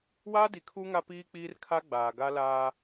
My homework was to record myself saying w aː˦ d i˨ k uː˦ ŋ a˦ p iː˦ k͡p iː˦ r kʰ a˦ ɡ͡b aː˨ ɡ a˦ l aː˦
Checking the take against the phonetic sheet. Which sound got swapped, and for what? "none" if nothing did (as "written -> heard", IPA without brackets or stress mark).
k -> kʰ